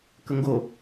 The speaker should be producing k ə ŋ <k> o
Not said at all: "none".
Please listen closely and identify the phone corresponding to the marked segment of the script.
ɡ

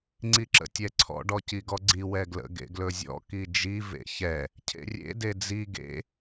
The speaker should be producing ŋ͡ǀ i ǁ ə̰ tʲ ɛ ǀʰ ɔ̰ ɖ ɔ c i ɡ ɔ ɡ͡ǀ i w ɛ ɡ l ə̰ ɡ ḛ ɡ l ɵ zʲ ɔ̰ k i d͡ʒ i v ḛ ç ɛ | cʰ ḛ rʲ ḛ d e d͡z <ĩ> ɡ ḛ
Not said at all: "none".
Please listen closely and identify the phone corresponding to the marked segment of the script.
i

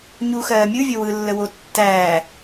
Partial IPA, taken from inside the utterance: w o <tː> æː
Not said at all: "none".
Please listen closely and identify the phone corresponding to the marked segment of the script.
tː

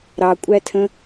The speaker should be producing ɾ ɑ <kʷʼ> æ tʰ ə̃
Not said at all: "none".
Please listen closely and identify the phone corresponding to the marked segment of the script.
kʷʼ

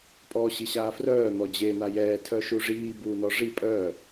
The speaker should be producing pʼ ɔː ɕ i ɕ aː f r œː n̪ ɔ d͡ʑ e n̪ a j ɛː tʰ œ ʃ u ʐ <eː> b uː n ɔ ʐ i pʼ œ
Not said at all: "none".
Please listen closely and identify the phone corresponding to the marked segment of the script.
iː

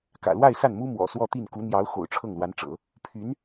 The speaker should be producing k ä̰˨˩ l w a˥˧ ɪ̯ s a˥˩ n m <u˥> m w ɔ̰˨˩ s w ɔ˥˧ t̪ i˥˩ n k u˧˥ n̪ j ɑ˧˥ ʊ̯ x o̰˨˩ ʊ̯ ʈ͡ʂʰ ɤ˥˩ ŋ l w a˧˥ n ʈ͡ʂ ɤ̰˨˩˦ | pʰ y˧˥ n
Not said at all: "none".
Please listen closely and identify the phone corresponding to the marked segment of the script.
u˥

